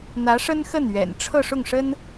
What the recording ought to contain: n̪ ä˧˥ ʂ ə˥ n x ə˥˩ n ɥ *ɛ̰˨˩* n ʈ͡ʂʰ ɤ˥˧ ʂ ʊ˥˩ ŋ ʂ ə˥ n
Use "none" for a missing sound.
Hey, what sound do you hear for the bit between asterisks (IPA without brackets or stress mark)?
ɛ̰˨˩